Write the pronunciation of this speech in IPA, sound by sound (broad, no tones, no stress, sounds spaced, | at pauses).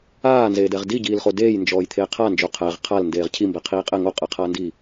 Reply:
aː n z eː d ɛ ʁ d i ɟ iː l χ o d eː j n d͡ʒ ɔː j t̪ʰ eː qʰ a n d͡ʒ o qʰ æ ʁ qʰ a l n d eː ʁ cʰ i m b ɛ qʰ iː qʼ ɛ ŋ o qʼ ɛ qʰ aː n d iː